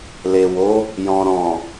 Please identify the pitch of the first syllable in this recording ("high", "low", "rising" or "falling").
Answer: low